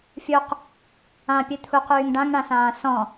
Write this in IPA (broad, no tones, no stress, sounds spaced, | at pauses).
fʲ u q | ã pʲ ɨ t̪ʰ u q yː ŋ ɖ ã ŋ ɳ ã s ãː s ɔ̃